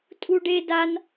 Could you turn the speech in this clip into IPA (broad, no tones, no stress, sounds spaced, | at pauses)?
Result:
tʼ u ɖ e d a n